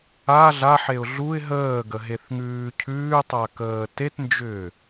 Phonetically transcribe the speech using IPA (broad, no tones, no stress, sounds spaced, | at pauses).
a ɮ a ħ e ʊ̯ ɮ u ɪ̯ ɦ əː ɡ ə ɦ e θ ŋ ʉː cʰ ʉː tˤ a k əː t e t n d͡ʒ ʏː